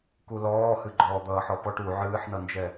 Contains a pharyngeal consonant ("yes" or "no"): yes